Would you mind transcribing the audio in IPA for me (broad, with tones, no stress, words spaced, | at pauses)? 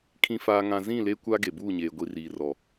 kʰĩ˨faː˨ŋã˨ zĩ˦˨le˦kʷa˦ ɡe˨buː˦˨ɲeː˨ ɡʷi˨riː˨rɔ˨